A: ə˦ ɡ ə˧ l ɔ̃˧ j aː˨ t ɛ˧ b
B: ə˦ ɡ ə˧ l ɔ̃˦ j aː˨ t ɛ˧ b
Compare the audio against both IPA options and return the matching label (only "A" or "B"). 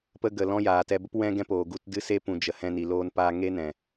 B